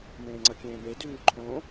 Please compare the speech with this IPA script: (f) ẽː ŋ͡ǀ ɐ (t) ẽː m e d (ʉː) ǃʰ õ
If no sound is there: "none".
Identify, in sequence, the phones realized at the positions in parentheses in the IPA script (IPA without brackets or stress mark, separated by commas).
m, kʲ, ʉː